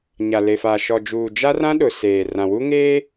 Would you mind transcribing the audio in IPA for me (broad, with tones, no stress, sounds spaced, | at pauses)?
ɲ a˨ l e˨ f aː˨ ʃ ɔ˨ d͡ʒ uː˨ d͡ʒ a˦ r ã˦ ɗ ʊ˨ s eː˨ r ã˨ w u˦ ŋ eː˦